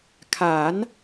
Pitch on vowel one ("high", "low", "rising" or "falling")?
rising